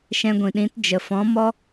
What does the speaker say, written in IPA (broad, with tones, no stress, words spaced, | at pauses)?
ʃɛ̃˧ɡʷĩ˨ɗĩ˨˦t d͡ʒə˨fɔ̃˨˦ mɔ˦